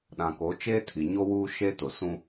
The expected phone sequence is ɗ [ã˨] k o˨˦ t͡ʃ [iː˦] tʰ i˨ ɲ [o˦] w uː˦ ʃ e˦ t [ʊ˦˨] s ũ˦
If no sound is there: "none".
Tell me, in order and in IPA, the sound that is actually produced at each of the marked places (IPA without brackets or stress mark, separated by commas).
ã˨, eː˦, o˦, ʊ˨